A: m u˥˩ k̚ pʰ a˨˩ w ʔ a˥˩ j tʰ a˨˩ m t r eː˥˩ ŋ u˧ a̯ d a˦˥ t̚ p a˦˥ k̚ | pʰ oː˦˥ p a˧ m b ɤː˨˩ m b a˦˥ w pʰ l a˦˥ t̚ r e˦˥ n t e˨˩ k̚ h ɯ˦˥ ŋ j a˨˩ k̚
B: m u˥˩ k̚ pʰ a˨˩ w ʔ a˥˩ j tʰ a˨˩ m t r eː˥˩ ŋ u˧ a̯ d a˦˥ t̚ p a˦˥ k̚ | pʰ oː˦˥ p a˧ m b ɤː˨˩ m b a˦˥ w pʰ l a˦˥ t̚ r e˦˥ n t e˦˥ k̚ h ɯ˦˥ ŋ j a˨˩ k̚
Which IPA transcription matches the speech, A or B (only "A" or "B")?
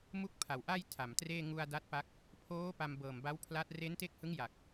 B